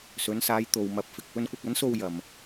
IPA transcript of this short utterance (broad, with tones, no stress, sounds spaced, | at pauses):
s ɵ˨˧ n s aː˨˧ j t̪ o˨ w m ɐ˨˥ p̚ f ɪ˨ k̚ p ɵ˧ n kʷ ɐ˧ k̚ ɐ˨˥ n s o˧ w j ɐ˨ m